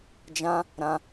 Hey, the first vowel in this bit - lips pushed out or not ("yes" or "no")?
no